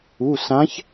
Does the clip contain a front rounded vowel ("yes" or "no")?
no